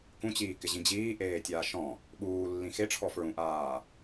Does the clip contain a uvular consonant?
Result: no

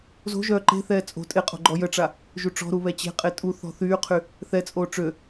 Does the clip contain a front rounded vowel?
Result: yes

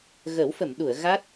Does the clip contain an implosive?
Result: yes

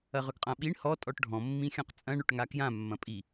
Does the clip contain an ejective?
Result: yes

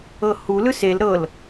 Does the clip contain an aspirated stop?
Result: no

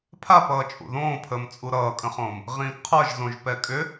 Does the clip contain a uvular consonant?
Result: yes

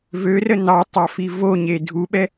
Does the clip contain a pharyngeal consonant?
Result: no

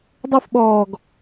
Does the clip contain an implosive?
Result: yes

